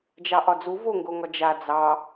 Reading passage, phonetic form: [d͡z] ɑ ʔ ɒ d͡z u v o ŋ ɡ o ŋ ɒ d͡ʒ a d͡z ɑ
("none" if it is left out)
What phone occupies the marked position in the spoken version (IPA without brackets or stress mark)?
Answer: d͡ʒ